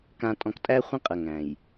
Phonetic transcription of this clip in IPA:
k ã˨ tʼ ɔ̃˨ k tʼ æ˦ χʷ ɐ̃˦ qʼ ɐ˨ ŋ æ̃˨ j

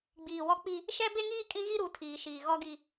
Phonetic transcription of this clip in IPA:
ɡ͡b iː˨ w ɔ˦ k͡p i˦ | ʃ ɛ˦ b e˦ ŋ iː˦ kʼ ĩ˦ ɣ i˦ ɾ u˨˦ tʰ iː˨ ʃ iː˨ ɣ ɔ˦ ɡ i˦

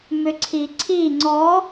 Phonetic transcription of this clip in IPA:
m ʏ ǀʰ i ǀʰ i ŋ͡ǀ ɔ

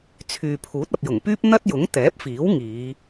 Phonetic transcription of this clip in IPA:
t͡sʰ yː˨ pʰ uː˨˥ t̚ ɐ˨ p̚ j ʊ˨˩ ŋ p yː˥ p̚ n̪ ɐ˥ t̚ j ʊ˨˥ ŋ t̪ ɛː˨˥ p̚ f iː˨˥ w ŋ iː˨˧

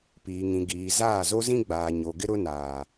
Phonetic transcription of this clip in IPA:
p iː˨ ŋ ĩ˨ ɡ iː˨ z aː˦˨ z o˦ z ĩ˦ ɡ͡b aː˨ ɲ o˨ ɡ ɪ˦ ɾ ʊ˦ n aː˨

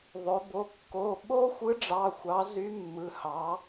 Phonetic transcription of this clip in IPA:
ðˤ ø˩˧ b o˩˧˩ kː o˩˧˩ ɓ o˦ xʷ ɯ˨˥ ɖ͡ʐ ɑ˩˧˩ xʷ ɑ˩˧ z y˨˥ mː ɯ˩˧˩ h ɑ˩˧

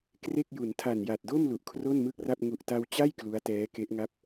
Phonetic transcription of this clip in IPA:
k r e˥˩ k̚ j u˩˦ n tʰ a˨˩ n j a˨˩ t̚ d o˥˩ m l u˨˩ ʔ kʰ r o˥˩ n m ɯ˥˩ k̚ r a˥˩ p̚ ŋ u˨˩ ʔ t a˧ w t͡ɕ a˥˩ j k l u˦˥ a̯ t ɛː˦˥ k e˦˥ ʔ ŋ a˥˩ p̚

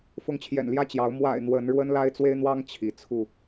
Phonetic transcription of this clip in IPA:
f ʊ˨˦ ŋ t͡ɕʰ j ɛ̰˨˩ n l j ä˥˨ t͡ɕ j ɑ˨˦ ʊ̯ m w a̰˨˩ ɪ̯ n̪ w ə˨˦ n ɻ w ə˦ n l a˦ ɪ̯ t͡s w e˦ ɪ̯ n̪ w ɑ˦ ŋ t͡ɕʰ i˨˦ t͡sʰ u˥˨

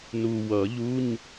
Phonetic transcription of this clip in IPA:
n u˨ w ʌ˨˩˦ ʎ u˧˥˧ ɲ

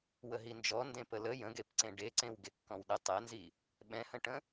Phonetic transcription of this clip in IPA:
w ə ɦ i n d͡ʒ ɔ n d ẽ p ə l ə j ə̃ ɡ e p ǀ ẽ ɖ e ǀ ẽ w ɡ e kː ɔ̃ w ɗ ɪ tˤ ɛ n z i | ɓ ɛ̃ h ə̃ ʈ ə̃

